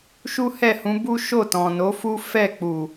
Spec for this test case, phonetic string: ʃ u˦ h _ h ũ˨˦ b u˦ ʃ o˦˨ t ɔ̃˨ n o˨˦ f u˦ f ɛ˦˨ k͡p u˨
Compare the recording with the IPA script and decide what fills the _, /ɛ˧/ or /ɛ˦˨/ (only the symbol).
ɛ˦˨